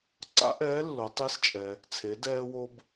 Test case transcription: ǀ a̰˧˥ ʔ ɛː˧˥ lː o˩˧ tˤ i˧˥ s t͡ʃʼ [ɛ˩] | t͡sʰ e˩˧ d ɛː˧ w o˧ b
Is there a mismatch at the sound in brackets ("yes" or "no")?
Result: no